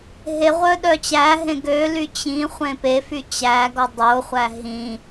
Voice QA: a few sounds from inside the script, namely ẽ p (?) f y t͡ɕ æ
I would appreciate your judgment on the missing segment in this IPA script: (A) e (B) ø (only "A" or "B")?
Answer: A